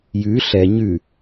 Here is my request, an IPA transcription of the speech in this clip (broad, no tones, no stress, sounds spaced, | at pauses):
j ʉ ɬ ɛ ɲ ʉ